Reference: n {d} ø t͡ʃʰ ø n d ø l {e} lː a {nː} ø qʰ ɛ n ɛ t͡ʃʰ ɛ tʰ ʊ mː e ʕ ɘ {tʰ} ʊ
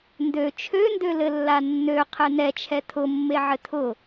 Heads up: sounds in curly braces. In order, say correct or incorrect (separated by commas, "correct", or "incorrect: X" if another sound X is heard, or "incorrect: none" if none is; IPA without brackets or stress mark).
correct, incorrect: ɘ, correct, correct